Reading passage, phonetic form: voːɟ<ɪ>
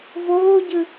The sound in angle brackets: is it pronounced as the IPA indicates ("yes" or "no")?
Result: no